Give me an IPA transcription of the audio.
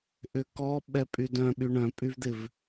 ʔ ʏ k ɔ ɓ ɛ pʼ y d œ̃ ɓ y ɳ œ̃ pʼ y v d̪ ɪ v

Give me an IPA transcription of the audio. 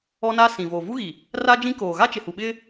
ɔ˦ n a˦ s ĩ˨ v oː˨ v u˦ ɣ i˨ | r aː˦ d͡ʒ ĩ˦ k oː˨ ɣ a˦ t͡ʃ ɪ˨ h u˨ ɓ ɪ˦

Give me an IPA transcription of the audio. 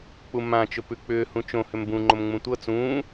k͡p u m ã t͡ʃ ʊ p ʉ k͡p ʏː h ũ t͡ʃ õ h ʏ m b ũ ŋ͡ǃ o m ŋ͡m ũ tʷ ɤ t͡s ũː

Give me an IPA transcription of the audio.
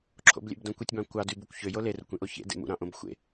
ǁʰ o̰ b lʲ ḛ b d õ kʷ i tʲ b ɑ̃ kʷ ɑ d y b u kʷ ç ø j o l e r ṵ kʷ ĩ ʔ o ç ḛ d ḛ m ṵ ɾ ɑ̃ ʔ õ b xʷ ḛ

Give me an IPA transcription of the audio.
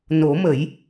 n o˨˩˦ m ə˨˩˦ j

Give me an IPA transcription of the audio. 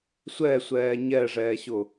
sʷ ɛ sʷ ɛː ɲ ɛ ʐ ɛː ɕ ʊ

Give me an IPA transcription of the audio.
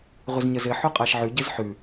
ʁʷ ɘ z ɲ ə z ɘ ħ o qʼ a ʃ ʕ ʉ ɟ ɘ z ħ ʉ

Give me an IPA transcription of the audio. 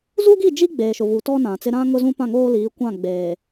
z u˦ ɡ i˦˨ d͡ʒ i˦ ɡ͡b eː˨ ʃ ʊ˨ v u˨ t ɔ˦ n ã˨ t͡s ɪ˦ ɾ ã˦ ŋ ʊ˦ z ũ˦ p ã˦˨ ŋ oː˦ l iː˨˦ kʷ ã˦˨ ɡ͡b eː˨

